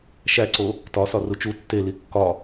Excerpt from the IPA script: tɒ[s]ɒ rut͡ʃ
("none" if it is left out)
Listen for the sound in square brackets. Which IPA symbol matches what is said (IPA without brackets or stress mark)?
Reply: s